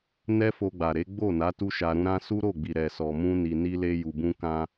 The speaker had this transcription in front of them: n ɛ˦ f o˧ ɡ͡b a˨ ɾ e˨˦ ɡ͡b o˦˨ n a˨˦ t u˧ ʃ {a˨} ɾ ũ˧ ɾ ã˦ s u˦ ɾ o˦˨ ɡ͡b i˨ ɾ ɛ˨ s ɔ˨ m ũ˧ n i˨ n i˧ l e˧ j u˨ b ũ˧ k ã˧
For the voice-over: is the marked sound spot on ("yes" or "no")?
yes